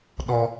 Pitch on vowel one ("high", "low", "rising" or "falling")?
high